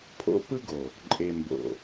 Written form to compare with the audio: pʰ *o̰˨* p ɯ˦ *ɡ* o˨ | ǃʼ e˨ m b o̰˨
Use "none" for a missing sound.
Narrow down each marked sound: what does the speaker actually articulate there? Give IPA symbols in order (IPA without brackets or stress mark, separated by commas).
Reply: o̰˦, ɡ